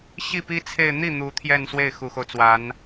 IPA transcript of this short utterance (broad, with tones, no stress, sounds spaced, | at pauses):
ɕ i˥˩ p i˥ t͡sʰ e˥˧ ɪ̯ n̪ i˥˩ n̪ u˧˥ t̪ʰ j ɛ˥˧ n s w e˥˩ ɪ̯ x u˨˩ x o˦ ʊ̯ t͡s w a˧˥ n